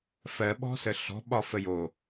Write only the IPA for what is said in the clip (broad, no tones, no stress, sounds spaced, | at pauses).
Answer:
f ɜ ɓ ɔ̤ s ə ɬ ɔ̤ ɓ ɒ f ə j o